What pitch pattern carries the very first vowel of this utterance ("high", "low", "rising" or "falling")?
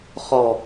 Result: low